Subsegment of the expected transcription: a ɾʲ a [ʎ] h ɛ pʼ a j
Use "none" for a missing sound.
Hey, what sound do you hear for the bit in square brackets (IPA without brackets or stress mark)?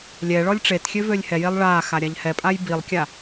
ʎ